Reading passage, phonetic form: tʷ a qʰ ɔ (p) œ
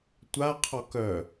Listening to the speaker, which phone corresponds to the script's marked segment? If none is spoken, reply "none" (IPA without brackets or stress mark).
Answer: k